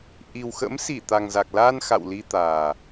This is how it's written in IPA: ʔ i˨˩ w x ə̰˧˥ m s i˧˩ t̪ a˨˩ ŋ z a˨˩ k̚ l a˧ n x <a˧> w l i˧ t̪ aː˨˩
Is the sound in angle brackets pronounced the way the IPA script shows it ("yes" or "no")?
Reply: no